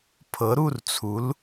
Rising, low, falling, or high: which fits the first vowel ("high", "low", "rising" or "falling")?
rising